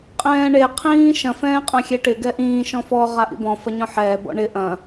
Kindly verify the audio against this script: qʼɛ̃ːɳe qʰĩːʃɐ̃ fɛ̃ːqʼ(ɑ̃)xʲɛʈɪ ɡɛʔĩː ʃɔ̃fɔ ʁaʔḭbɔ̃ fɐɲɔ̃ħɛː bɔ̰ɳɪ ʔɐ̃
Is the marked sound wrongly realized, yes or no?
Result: yes